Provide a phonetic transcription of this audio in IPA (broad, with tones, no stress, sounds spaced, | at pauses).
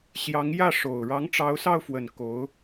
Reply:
ɕ j ɑ˧˥ ŋ j ä˥˩ ʂ o˨˩ ʊ̯ ɻ ɑ˧˥ ŋ ʈ͡ʂ ɑ˧˥ ʊ̯ s ɑ˥˩ ʊ̯ f w ə˨˩ n k o˧˥ ʊ̯